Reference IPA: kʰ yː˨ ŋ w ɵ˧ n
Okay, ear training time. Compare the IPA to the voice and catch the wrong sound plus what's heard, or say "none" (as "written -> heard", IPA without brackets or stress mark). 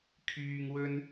none